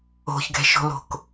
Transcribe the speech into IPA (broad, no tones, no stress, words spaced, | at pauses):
o̤çɡɛ̤ʃo̤lo̤k